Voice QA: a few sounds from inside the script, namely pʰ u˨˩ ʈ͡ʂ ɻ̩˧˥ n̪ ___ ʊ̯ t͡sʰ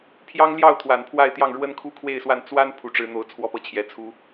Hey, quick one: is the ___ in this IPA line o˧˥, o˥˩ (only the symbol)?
o˧˥